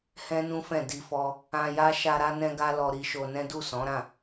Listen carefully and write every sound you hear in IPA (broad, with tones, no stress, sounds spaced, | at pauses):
h ɛ̃˦ n ũ˦ f ɛ̃˦˨ d i˧ f ɔ˧ | ã˧ j a˦ ʃ a˧ ɾ a˦ n ɛ̃˦ ɡ a˦ l ɔ˧ ɾ i˧ ʃ o˧ n ɛ̃˦ d u˦˨ s ɔ̃˨˦ ɾ ã˦˨